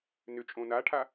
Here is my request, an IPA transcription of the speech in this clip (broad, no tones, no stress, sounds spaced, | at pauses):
n ʏ t͡ʃʼ õ n a ʈʰ a